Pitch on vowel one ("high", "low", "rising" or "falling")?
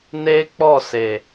high